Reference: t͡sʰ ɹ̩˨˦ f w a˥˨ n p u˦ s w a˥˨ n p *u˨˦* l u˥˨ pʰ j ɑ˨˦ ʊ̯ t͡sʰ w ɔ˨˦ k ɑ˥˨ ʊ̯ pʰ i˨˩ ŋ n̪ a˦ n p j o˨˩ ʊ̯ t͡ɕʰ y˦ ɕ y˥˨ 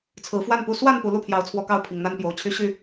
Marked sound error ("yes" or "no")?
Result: no